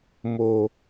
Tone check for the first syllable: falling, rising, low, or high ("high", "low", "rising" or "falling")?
low